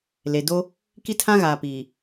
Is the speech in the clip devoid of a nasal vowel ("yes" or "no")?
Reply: no